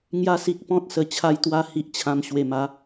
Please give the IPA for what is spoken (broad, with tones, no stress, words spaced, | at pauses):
ŋja˧si˨k̚ pɔ̃˦t̚sə˨˩ t͡ɕʰa˧jt̪wa˧ hi˨ʔt͡ɕʰã˨˩m ɕwe˨˩ma˨˦